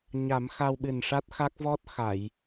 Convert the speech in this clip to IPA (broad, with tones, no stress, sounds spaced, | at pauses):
ɲ a˨˩˦ m x a˧ w ɓ ɨ˨˩ n ʂ a˦˥ t̚ x a˦˥ k̚ v ɔ˦˥ t̚ x a˨˩˨ j